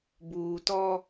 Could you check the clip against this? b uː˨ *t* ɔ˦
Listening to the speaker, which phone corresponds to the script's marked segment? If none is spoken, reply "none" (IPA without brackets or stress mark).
t